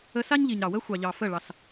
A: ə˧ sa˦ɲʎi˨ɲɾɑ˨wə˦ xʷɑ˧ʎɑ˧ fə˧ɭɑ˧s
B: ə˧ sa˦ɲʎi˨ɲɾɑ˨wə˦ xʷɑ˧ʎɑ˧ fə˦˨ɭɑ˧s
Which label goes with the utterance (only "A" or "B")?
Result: B